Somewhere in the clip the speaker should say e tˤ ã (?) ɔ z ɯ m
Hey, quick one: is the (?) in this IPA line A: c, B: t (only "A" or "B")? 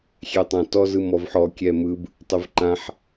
B